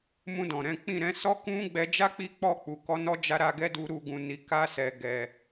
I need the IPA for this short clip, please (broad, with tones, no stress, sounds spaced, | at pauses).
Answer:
m ũ˧ d ɔ̃˨ ɾ ɛ̃˨˦ k͡p ĩ˦˨ ɾ ɛ̃˨˦ s ɔ˦ k ũ˦ ɡ͡b ɛ˧ d͡ʒ a˦ k͡p i˧ k͡p ɔ˧ k͡p u˨ k ɔ˨˦ n ɔ˦ d͡ʒ a˦ ɾ a˧ ɡ ɛ˦ d u˧ ɾ u˨ ɡ ũ˨ n i˨ k a˧ s ɛ˨ ɡ ɛ˨